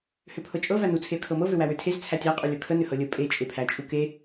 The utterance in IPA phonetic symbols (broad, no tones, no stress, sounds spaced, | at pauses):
h ø pʰ ɤ t͡ʃʼ ɤ v æ n u t͡sʰ e ə̯ kʰ ɤ m ɤ v ø w æ w ø tʰ e z t͡sʰ æ tʲ æ qʼ u lʲ ɤ kʰ ə n ø h ɤ lʲ ə pʼ e t͡ʃʼ e pʰ æ t͡ʃʼ u k e